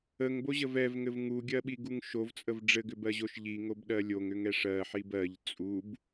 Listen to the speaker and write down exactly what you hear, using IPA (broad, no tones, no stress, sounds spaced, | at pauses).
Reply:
ə ŋ b o ʑ ə v ɛ v ŋ ɘ v ŋ u ɡʲ ɜ ɓ i ɡ u ŋ ʃ o v t͡sʼ ə v ɖ͡ʐ ɘ ɡ ʏ b ɜ ʑ o ʃ ʎ i ŋ o b ɗ ɜ lʲ o ŋ ʏ ŋ ɛ ʂ ɜ ħ i b ɜ ʎ t͡sʼ u b